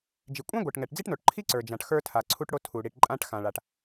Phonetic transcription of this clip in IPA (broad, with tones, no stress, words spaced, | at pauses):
d͡ʒi˩kʷʼã˥ɡʷɛ˩ʈŋɛ˩ʈ d͡zi˥ʈno˩ʈǃʰi˥ ǀə˞˩d͡ʒã˩ʈ xə˞˧tʰa˩ǀʰu˧ʈɽo˧ tʰu˩ ɽi˩ʈ ǃʼã˧ʈ xã˩ɭa˩ʈ